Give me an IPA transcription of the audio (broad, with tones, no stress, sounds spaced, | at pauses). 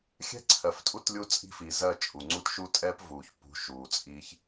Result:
xʲ ɛ̤˦ ǀʰ ɜ˨ f tʼ u˦ t lʲ u˦ t͡sʼ i̤˦ f i˨ z ɜ˦˨ t͡ʃʼ u˨ ŋ͡ǀ u˦ t ʃ u˦ tʼ ɛ˦ p v uː˨ ç p ṳ˨˦ ʃ uː˨ t͡sʼ iː˦ ç